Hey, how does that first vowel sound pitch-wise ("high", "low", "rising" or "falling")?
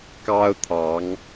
high